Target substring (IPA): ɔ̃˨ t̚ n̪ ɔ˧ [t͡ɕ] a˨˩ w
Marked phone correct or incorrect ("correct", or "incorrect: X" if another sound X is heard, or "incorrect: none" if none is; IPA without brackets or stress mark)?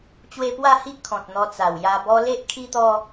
incorrect: t͡s